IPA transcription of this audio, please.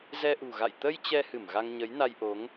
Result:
z ɛ˧ ʔ ṳ˨˩ ɣ a̰˧˨ j t̪ ə˧ j t͡ɕ ɛ˧ h ɨ˧˩ m ɣ a˧ ŋ ɲ ə˨˦ j n a˧ j ʔ o˨˦ ŋ

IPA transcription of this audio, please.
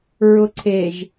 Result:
ɹ ʊ ǀʰ e ʒ

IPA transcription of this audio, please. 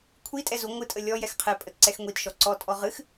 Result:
kʷʰ i tʼ ɛ z u ŋʷ ɨ tʼ ə lʲ ɔ j ɛ x qʰ ɛ pʼ ə t ǀ ɛ x ŋʷ i t ʃ ɔ ǀ ɔ tʼ ɔ ʁ ɨ x

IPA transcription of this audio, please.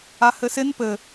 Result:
a h ɘ s ɪ n p ɘ

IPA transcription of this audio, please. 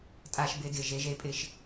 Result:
tʼ a˦ ʃ b ɪ˦ d ɪ˦˨ ʒ e˨˦ ʒ e˧ pʼ ɪ˧ ʃ

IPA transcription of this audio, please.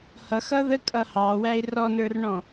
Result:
h ʌ x ʌ ð ə kʼ ʌ h ɑ w æ ɪ̯ r ɔ n ə˞ r ɳ ɔ̃

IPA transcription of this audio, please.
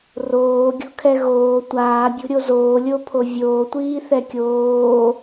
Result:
r oː ɡʲ o̤ kʰ ɛ ɣ oː tʷ aː bʲ o̤ ɾʲ o z oː lʲ o pʰ o vʲ oː tʷ iː θ ɛ kʲ oː

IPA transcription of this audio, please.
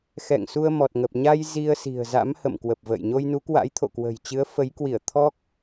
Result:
x ɛ̰˧˨ ŋ s u˧ ə̯ m ɔ˨˩ t̚ ŋ ə˨˩ p̚ ɲ a˧ j z i˧ ə̯ s i̤˨˩ ə̯ z a̰˧˥ m h ə̰˧˨ m k w ə˨˩ p̚ v ə̰ː˧˨ j ɲ o˧ j n u˨˦ k w a̰˧˥ j t̪ʰ o̰˧˨ k w ə̤˨˩ j t͡ɕ ɨ˨˦ ə̯ f ə˨˦ j k w i˧˩ ə̯ t̪ʰ ɔ˦˥ k̚

